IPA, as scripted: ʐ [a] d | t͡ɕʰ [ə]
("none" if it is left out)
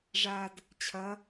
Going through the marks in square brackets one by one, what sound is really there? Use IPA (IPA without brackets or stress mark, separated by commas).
a, ɐ